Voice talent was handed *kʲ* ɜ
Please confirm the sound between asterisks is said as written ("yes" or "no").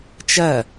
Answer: no